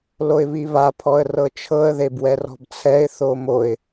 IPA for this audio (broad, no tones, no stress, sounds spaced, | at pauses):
l o ɪ̯ β i β a pʰ ɔ ə̯ r ɤ t͡ʃʰ ɤ ə̯ ð e b w ɛ r ɔ̤ b t͡sʰ ɛ ɪ̯ θ o m o ɪ̯